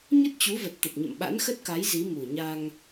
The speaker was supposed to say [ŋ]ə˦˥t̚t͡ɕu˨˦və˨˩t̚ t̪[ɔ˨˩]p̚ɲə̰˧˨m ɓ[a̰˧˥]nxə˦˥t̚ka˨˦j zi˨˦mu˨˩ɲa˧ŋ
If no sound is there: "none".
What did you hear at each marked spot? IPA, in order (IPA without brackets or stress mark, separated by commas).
ɲ, ə˨˩, a̰˧˥